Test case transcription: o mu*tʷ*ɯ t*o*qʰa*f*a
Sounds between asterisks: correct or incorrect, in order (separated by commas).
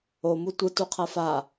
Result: correct, incorrect, correct